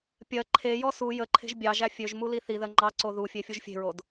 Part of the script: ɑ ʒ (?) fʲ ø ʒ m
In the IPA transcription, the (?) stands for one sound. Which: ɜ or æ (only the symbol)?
æ